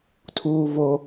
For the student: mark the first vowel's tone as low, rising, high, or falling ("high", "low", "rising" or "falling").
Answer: high